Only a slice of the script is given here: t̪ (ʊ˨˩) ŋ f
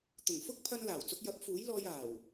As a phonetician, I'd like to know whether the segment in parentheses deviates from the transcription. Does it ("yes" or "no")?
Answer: no